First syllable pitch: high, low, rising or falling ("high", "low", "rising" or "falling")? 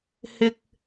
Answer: low